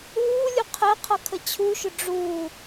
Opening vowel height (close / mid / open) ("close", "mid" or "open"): close